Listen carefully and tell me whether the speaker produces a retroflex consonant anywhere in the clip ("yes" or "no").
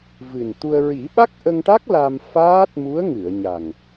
yes